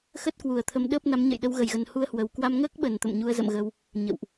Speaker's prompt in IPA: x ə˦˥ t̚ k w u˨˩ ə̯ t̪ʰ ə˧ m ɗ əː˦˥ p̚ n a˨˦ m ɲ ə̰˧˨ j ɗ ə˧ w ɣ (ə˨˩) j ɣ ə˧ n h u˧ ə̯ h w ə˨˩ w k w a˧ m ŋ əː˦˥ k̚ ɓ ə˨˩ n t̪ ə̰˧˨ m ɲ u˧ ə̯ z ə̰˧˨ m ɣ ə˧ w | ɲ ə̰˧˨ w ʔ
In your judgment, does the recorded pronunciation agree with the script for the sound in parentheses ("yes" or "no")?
yes